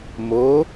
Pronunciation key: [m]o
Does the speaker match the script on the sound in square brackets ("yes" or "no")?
yes